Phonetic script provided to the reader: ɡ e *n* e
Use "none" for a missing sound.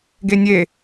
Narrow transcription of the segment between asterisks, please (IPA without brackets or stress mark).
nʲ